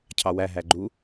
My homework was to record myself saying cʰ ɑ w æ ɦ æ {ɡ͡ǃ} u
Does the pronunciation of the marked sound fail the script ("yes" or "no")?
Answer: no